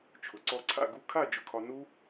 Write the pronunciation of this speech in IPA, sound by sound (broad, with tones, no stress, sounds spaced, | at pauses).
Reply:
t͡ʃʰ ʊ˩ ǀ ɔ˧ ǀʰ a̰˥˨ ɡ u˧ kʰ a˥˨ d͡ʒ ʊ˧ kʰ ɒ˧ n u˦˥